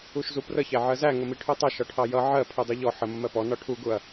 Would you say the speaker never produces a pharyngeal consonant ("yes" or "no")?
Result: no